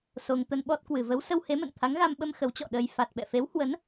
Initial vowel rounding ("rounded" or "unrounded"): rounded